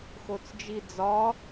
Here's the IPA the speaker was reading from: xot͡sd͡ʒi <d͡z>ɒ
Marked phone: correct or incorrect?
correct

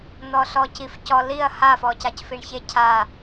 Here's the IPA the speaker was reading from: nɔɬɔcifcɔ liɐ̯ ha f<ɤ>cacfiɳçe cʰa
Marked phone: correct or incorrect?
incorrect: ɔ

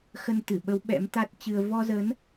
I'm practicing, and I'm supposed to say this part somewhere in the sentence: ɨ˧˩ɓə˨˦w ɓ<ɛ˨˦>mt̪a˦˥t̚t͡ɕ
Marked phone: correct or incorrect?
incorrect: ɛ̰˧˥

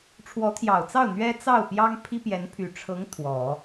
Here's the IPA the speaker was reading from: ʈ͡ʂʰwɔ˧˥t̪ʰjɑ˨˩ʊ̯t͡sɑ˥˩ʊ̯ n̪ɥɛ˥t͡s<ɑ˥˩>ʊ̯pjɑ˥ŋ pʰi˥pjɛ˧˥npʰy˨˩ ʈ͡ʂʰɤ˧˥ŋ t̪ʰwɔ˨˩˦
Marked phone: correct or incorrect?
correct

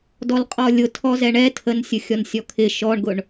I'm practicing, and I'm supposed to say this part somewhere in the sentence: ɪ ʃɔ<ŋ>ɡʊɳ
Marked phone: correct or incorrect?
incorrect: ɳ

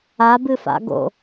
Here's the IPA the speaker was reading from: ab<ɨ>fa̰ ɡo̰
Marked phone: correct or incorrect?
correct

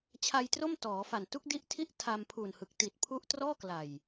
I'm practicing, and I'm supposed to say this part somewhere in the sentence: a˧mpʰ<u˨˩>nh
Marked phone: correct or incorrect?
correct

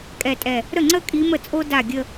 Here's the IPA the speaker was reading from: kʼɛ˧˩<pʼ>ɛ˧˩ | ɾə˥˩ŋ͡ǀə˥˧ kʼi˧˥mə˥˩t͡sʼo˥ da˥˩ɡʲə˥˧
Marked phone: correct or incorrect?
incorrect: tʼ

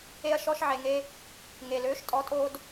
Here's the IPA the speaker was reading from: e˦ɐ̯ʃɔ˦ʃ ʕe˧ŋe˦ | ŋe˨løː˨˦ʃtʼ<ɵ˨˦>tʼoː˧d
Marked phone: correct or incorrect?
incorrect: ɔ˨˦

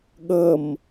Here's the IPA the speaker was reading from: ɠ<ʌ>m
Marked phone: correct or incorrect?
correct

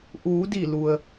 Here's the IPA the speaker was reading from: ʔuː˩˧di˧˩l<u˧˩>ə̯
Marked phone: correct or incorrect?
incorrect: u˩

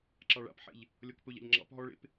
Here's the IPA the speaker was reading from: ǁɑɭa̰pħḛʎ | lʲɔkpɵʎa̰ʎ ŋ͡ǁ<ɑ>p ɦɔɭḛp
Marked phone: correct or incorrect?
incorrect: ɑ̰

